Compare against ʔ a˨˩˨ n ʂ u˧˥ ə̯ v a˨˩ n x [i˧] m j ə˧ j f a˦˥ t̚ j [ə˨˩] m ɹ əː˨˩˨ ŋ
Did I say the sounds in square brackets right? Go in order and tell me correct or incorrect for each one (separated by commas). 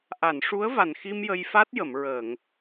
correct, incorrect